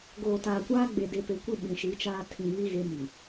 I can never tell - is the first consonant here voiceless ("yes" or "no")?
no